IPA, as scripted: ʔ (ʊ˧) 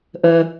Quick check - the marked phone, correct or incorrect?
incorrect